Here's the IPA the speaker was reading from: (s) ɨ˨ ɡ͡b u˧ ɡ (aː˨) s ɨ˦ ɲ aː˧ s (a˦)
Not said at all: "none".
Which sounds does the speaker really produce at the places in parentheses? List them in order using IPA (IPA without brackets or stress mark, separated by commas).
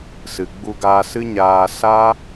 s, aː˧, a˦